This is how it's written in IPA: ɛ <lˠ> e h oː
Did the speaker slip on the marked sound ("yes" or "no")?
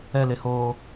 yes